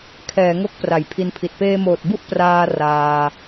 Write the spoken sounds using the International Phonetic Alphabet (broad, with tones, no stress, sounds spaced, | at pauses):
kʰ ɛː˩˦ ŋ o˥˩ k̚ p r a˩˦ j pʰ i˧ n pʰ i˨˩ t̚ p eː˧ m oː˨˩ t̚ b u˥˩ ʔ p r aː˧ r aː˧